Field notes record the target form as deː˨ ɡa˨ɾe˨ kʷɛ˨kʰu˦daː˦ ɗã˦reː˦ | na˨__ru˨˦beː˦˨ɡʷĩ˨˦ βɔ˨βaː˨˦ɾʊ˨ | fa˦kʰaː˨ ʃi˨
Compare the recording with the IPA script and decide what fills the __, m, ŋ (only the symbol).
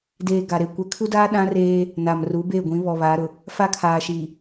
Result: m